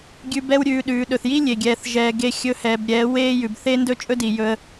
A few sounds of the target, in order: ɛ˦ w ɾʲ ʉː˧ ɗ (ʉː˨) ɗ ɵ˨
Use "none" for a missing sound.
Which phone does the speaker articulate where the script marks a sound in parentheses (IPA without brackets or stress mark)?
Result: ʉː˨